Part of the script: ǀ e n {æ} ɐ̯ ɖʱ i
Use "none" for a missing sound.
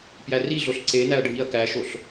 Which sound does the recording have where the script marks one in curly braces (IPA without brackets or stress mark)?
æ